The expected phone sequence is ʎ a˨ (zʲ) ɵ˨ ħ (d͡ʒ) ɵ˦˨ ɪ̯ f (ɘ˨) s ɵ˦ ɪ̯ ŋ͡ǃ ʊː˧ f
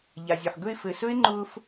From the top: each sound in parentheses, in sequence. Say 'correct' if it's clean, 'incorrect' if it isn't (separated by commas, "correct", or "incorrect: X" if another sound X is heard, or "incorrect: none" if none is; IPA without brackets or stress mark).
correct, incorrect: ɡ, correct